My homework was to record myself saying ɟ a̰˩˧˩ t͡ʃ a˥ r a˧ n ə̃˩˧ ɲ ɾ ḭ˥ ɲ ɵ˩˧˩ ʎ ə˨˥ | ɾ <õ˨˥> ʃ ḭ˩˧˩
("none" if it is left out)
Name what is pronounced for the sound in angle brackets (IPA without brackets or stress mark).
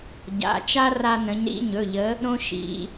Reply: õ˥